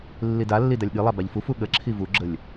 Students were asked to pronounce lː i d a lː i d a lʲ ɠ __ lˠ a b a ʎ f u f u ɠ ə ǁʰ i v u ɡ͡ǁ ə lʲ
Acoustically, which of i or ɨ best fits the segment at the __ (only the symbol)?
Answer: ɨ